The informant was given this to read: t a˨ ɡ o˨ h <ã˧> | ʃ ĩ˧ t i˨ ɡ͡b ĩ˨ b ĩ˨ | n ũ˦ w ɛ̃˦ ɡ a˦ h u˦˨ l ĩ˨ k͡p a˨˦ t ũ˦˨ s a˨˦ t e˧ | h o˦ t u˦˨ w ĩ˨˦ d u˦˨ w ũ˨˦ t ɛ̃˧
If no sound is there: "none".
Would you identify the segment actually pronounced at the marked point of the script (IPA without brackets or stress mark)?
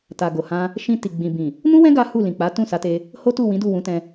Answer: ã˧